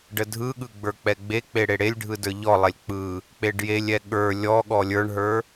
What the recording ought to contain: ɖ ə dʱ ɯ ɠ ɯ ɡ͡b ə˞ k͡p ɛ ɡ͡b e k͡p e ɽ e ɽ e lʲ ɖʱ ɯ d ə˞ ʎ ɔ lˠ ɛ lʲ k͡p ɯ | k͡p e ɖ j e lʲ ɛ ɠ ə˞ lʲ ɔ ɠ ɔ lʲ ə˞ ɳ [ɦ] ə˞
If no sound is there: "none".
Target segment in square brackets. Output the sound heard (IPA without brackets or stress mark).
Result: ɦ